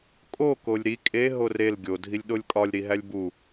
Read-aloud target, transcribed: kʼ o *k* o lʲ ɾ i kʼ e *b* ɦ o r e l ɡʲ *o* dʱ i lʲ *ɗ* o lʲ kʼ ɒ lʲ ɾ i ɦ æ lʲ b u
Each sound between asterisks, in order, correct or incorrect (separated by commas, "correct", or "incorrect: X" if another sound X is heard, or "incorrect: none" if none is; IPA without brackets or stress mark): correct, incorrect: none, correct, correct